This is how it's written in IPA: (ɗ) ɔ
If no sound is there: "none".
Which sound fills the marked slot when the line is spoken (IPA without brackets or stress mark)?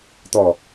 t̪